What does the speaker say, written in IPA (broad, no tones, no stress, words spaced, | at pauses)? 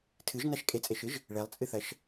tʰɨʒnaʃ kʼet͡sʼeʃɨʒ | ɭelˠt͡sʼɨθɐʃ